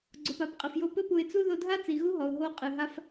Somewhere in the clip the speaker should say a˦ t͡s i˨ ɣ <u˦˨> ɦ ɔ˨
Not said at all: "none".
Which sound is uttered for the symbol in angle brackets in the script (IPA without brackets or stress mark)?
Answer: u˦